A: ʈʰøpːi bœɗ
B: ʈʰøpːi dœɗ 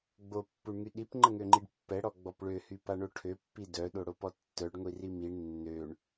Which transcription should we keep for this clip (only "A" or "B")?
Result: B